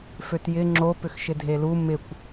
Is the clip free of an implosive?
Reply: yes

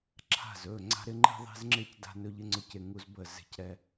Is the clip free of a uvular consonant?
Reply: yes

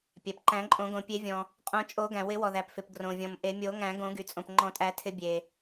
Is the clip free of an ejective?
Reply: no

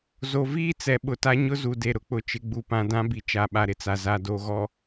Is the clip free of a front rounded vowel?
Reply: yes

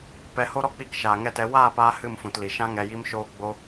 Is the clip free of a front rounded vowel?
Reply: yes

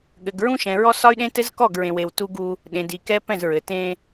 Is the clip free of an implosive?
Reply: no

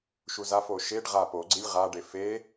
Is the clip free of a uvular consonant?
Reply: no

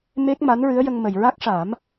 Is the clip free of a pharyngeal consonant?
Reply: yes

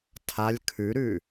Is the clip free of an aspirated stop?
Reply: no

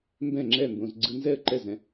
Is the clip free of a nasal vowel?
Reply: no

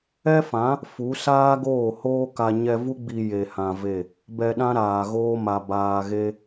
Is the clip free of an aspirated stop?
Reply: yes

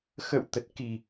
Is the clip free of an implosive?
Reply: yes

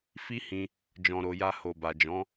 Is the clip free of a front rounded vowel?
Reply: yes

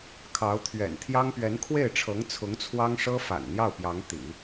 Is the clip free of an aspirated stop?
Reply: no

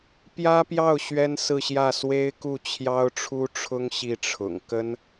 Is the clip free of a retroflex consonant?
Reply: no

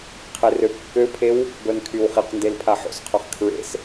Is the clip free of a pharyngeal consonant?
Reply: no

